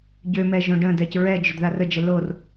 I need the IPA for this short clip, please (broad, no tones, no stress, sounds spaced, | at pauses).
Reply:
ɟ ø m ɛ ʒ õ ɖ ə̃ d ɛ c ɹ ɛ d͡ʒ ʏ d ð a r ə d͡ʒ ɛ l o r